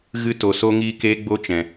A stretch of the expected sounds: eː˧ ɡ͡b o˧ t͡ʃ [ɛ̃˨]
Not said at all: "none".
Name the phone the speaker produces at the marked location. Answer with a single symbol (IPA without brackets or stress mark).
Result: ɛ̃˨